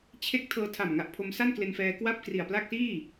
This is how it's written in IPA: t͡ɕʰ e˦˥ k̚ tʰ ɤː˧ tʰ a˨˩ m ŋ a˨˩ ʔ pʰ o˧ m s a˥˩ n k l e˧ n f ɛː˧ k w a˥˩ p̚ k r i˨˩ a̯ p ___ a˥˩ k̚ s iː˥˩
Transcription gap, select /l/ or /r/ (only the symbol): l